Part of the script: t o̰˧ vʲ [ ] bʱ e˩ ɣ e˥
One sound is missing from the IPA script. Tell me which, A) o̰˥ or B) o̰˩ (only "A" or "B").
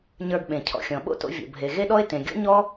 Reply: B